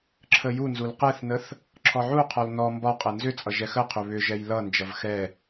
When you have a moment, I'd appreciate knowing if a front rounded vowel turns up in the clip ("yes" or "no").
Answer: yes